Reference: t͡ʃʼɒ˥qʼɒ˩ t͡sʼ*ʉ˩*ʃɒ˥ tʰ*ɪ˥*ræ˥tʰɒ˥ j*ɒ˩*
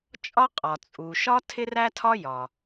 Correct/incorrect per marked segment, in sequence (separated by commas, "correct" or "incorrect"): incorrect, correct, correct